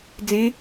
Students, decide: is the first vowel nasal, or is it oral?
nasal